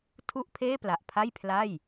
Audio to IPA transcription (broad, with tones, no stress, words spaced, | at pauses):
tʰu˥˩ʔpʰeː˥˩pla˨˩ʔpʰa˥˩j pʰla˥˩j